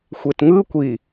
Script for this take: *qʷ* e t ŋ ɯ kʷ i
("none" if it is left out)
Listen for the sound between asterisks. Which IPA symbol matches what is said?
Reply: xʷ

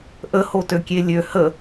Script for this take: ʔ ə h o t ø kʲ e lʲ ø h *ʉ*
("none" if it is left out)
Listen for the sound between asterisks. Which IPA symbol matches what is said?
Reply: ə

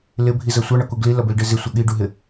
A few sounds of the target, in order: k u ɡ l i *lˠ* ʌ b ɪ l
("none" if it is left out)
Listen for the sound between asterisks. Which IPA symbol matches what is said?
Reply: l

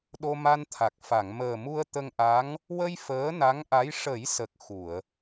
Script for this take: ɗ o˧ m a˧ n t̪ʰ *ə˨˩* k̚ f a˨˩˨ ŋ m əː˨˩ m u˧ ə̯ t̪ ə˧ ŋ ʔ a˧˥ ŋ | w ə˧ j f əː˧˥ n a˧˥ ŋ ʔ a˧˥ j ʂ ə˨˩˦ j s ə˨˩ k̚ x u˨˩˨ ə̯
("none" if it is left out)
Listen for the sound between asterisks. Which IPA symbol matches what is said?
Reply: a˨˩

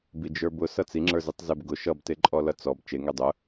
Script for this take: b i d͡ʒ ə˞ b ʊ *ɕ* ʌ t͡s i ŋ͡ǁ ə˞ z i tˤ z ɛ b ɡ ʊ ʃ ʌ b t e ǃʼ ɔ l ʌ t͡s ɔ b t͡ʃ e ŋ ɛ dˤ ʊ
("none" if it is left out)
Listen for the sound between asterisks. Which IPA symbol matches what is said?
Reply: s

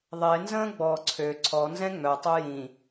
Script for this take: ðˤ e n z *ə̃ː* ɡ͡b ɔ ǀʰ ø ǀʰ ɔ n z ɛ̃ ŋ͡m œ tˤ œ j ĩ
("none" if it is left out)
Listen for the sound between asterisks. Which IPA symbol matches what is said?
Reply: ə̃ː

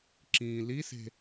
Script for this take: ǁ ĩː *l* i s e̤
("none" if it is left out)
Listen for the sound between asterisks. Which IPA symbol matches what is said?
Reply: l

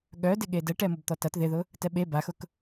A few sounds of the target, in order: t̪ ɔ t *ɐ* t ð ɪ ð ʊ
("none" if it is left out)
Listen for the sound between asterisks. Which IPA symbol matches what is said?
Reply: ɐ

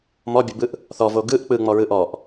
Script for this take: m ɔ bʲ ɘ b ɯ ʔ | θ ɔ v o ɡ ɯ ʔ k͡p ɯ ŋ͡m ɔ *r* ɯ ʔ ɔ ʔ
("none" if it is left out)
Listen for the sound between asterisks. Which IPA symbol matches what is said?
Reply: ɹ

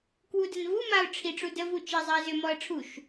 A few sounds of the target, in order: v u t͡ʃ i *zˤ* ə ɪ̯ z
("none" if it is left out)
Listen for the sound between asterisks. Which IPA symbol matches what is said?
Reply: zˤ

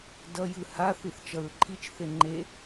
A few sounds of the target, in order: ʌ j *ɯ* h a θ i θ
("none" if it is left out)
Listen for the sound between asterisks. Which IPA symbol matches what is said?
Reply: ɯ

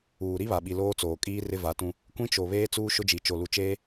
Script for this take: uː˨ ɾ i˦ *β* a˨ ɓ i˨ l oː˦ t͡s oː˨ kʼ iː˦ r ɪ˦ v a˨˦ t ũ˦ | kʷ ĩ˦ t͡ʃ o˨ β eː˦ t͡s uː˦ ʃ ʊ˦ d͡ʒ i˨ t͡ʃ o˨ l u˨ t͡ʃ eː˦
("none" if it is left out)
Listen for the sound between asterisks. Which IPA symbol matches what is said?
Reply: β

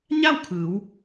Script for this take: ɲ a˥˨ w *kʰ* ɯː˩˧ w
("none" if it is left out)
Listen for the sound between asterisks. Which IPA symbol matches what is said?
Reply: kʰ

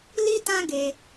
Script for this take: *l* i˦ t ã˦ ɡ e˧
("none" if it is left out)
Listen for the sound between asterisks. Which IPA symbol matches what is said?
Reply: l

